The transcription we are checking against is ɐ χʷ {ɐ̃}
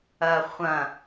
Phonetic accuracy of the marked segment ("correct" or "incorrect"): correct